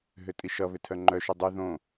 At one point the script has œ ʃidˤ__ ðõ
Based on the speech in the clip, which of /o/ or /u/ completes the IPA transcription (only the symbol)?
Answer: u